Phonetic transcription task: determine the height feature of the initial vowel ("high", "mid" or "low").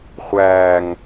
low